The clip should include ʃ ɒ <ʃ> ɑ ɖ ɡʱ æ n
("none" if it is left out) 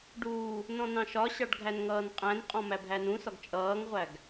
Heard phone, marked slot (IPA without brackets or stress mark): ɕ